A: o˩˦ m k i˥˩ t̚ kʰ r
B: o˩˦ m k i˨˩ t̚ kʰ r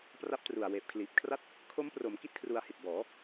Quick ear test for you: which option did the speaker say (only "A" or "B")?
A